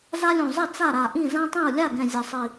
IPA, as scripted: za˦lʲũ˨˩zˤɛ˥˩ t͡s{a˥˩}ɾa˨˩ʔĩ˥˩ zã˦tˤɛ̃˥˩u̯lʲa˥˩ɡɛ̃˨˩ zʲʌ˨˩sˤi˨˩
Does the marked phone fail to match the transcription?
no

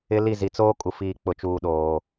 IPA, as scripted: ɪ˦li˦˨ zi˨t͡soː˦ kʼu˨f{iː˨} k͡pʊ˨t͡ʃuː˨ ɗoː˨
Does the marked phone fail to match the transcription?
no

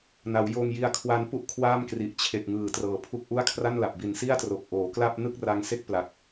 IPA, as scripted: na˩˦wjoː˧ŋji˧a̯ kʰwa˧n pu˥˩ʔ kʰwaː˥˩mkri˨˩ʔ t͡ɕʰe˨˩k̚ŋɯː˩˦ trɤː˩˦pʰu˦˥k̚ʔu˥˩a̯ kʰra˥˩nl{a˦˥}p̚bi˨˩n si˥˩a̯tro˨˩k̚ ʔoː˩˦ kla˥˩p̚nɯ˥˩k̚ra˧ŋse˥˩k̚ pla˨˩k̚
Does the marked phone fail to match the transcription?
yes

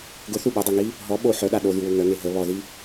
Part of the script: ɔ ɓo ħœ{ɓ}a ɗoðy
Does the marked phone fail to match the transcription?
yes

